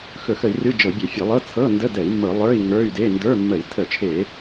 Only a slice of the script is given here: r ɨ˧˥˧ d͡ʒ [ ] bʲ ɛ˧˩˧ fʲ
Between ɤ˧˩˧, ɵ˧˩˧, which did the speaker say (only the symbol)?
ɤ˧˩˧